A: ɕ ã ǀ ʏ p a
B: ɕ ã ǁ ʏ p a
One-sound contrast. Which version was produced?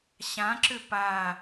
B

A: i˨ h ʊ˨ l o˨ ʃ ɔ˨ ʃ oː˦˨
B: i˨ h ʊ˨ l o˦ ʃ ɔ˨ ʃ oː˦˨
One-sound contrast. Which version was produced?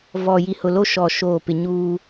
B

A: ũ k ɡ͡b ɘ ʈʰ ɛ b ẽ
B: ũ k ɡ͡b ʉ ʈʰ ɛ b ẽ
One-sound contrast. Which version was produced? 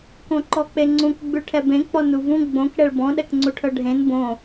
B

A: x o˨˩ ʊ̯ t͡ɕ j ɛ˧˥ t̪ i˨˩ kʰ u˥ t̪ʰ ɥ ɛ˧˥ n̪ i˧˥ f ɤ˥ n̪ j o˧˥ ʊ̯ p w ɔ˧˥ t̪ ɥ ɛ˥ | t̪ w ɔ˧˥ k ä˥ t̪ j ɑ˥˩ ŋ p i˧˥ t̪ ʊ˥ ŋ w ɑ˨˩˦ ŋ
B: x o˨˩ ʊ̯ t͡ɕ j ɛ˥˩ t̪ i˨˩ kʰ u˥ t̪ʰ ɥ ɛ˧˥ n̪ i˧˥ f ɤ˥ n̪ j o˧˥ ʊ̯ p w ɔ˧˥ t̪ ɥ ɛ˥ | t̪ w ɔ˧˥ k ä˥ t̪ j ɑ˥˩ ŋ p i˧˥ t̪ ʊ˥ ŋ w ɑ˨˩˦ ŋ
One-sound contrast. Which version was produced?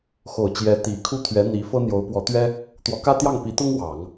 A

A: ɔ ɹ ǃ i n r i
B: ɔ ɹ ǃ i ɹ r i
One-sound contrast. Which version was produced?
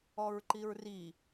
B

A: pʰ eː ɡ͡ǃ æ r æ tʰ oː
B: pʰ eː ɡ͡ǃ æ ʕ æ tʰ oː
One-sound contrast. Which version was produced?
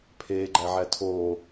B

